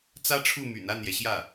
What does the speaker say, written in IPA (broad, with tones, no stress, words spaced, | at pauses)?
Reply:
t͡sä˥ʈ͡ʂʰu˥˩my̰˨˩n a˥˩njɛ˩ɕjä˥˩